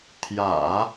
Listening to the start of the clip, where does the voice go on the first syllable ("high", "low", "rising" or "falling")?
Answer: low